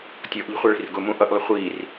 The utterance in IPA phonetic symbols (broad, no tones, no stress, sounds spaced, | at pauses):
tʲ ɔ ʔ ʎ ə̤ χʷ ɑ ɭ i̤ r ɡ ʊ m ũ ʔ ʌ ʔ lˠ ɪ χʷ iː r